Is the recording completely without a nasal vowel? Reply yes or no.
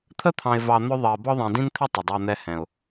no